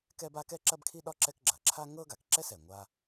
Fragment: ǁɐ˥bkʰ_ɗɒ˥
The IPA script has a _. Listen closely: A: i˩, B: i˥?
B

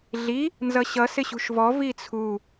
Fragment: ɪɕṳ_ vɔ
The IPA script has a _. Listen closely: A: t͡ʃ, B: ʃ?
B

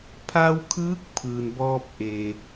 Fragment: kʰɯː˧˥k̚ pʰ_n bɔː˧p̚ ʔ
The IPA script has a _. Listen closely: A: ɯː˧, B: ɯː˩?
B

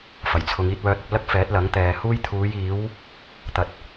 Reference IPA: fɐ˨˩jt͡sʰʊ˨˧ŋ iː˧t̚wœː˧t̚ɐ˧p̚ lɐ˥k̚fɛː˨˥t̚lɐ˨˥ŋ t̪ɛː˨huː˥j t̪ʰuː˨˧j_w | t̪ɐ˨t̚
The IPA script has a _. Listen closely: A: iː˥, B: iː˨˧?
B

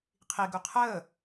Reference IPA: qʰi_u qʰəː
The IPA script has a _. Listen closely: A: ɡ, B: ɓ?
A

